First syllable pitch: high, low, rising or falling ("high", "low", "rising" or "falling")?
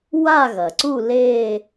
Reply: falling